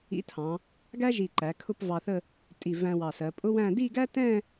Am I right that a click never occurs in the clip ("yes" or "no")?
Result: no